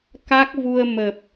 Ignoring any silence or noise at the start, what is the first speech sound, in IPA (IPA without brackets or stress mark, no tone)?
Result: k